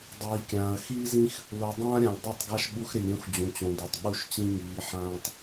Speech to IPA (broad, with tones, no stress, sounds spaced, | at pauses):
dˤ iː˨ kʲ ãː˨ ɐ̯ x iː˦ z ĩ˦ x | l o˨ dˤ ãː˦ ɾʲ ã˨ lʲ dˤ i˦˨ tˤ ɡ a˦ ʃ ɓ u˦ x ɾ ɪ˨ lʲ ɾʲ õ˦ x d͡ʑ ũ˨ t͡ɕ õ˨ d o˨ tˤ ɓ u˦ ʃ t͡ɕ ĩ˦ ŋ iː˨˦ ħ ãː˦ tˤ